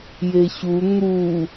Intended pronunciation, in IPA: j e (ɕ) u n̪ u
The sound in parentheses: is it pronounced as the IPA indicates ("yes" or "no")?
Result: yes